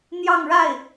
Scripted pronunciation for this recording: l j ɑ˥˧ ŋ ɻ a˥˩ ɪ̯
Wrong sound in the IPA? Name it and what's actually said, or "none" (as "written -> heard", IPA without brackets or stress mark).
l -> n̪